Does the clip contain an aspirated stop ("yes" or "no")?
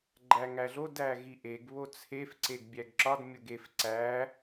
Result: yes